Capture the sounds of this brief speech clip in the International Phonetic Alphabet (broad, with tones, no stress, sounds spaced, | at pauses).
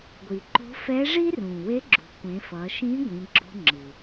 ɡʷ i˩ ǃ o̤˧˥ f ɛ˧˥ ʐ i˥ r ũ˩ w e˧˥ ɡ͡ǁ ṳ˩˧ kʷ ẽ˩˧ f ʌ˩˧ ʃ ĩ˧˥ ɡʷ ĩ˩˧ ɡ͡ǁ o̤˧ ŋ͡ǁ ɯ˩